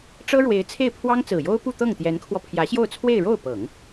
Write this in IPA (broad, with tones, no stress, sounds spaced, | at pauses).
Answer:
ʈ͡ʂ ɤ˥ ɻ w e˧˥ ɪ̯ t͡sʰ e˥˩ ɪ̯ pʰ w ɑ˥ ŋ t͡s ɹ̩˨˩ j o˥ ʊ̯ p u˥˧ t̪ ɤ˥˩ ŋ t̪ j ɛ˧˥ n kʰ w ɔ˧ pʰ j ä˧˥ ɕ j o˥˧ ʊ̯ t͡sʰ w e˥˧ ɪ̯ ɻ o˥˩ ʊ̯ p ɤ˨˩˦ ŋ